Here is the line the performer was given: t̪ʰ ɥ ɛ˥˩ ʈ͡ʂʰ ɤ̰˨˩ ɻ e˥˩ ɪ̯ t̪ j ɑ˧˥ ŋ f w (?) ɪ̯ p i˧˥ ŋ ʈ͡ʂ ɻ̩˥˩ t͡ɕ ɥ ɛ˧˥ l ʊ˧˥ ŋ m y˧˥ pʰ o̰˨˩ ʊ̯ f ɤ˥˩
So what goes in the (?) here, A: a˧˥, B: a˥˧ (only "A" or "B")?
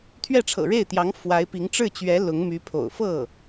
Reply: A